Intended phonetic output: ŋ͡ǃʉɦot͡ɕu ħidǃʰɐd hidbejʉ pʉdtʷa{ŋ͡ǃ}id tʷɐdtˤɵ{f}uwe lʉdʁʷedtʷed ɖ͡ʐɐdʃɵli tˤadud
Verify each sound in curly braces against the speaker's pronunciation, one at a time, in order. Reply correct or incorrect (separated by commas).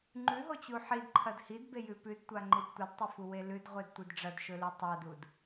correct, correct